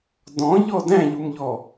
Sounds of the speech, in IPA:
dɔ̃ʎɔ dæ̃ʎumʎɔ

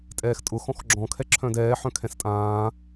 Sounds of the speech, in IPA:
tʼɛːxtʼʊ xɔ̃xɡ͡ǁɔ̃ kʰɛǁʰœ̃dɛː ħœ̃kʰɛ̃stʼãː

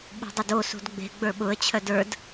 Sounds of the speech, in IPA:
ɓṳdˤʏdosṳd ɡ͡be̤ ɡ͡bə˞ɓʊə̯t͡ɕʰœd ə˞d

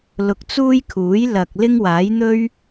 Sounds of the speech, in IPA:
lʊ˧k̚t͡suː˥jkʰuː˨˥j lɐ˨k̚ lɪ˥ŋwaː˨˥jn̪ɵ˥ɥ

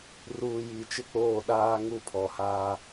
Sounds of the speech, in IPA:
ruː˨ji˨ t͡ʃɪ˦k͡poː˦˨ɗaː˦ ŋu˦˨pʰɔ˨haː˦

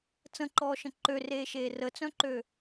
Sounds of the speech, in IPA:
t͡sə̃ǃɔːʃə̃ ǃøreːʃeː rət͡sœ̃ǃø

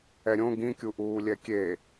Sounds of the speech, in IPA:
ɛɾʲõ ɡĩkʲuʔuː lʲɛkʲe

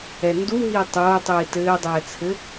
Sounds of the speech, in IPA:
ɛnduɦiː tˤoːtˤiː tɘːdˤɛː t͡sʰɘ

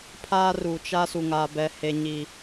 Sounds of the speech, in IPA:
pʰaː˦ ru˨t͡ʃa˦ su˨ŋaː˨ bɛ˨he˨ɲi˨

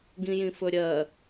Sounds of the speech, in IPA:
ɡĩjĩfɵɾʲɜ

